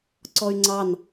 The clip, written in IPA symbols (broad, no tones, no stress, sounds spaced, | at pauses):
ǀ ɔ y̯ ŋ͡ǀ ɑ n